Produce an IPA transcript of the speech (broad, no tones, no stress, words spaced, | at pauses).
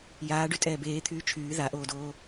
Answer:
jaː ɖytʼɛːbeːt̪ʰyː t͡ʃʰyː ðaʔoːdoː